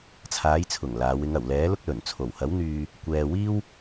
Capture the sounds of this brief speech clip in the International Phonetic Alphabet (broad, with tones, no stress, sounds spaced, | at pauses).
t͡sʰ aː˨˧ j t͡sʰ ʊ˨˩ ŋ l aː˨˧ w ɪ˨˧ ŋ ɐ˨˩ w l ɛː˨˥ l ʊ˥ k̚ l ɵ˨˩ n t͡sʰ o˨˩ w h ɐ˨˥ w n̪ yː˧ | kʷ ɛː˨ w iː˥ w